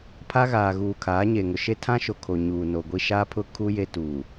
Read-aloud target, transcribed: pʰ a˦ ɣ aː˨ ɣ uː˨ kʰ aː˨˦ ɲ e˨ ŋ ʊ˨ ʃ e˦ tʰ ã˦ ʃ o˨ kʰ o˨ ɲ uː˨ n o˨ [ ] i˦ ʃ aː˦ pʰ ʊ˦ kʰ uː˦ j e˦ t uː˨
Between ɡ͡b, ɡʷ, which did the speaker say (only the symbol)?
ɡʷ